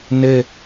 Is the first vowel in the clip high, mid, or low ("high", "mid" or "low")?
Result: mid